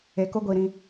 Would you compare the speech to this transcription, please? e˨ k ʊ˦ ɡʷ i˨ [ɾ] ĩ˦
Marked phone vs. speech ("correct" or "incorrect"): correct